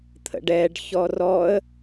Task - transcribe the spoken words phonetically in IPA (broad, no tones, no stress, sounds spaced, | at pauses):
t̪ʰ ə̰ ɖ ɛ ɖ ç ɔ r ɔ ə̯